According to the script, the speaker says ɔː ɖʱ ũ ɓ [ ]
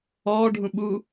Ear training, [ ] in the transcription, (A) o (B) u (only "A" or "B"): B